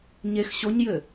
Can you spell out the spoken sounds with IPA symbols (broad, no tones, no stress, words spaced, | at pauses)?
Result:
ɲex ɕoɲjɘ